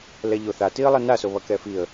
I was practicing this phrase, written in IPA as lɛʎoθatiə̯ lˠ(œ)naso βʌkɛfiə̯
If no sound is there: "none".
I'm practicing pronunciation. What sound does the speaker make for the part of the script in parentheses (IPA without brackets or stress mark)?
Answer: ɛ